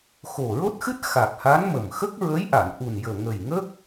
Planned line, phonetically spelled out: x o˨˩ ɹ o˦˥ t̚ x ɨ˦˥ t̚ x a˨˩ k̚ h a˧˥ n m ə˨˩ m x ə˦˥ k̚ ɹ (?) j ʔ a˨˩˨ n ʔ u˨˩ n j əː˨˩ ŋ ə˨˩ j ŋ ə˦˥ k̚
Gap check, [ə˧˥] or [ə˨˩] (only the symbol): ə˧˥